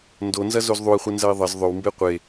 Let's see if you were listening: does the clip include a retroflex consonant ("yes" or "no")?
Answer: no